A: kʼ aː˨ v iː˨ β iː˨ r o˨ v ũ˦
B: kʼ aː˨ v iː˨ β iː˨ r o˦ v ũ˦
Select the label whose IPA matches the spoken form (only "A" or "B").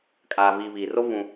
B